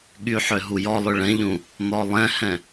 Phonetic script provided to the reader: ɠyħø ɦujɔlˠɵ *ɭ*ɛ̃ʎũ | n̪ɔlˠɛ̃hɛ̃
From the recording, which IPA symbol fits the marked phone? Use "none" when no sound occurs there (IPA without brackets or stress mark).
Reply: ɭ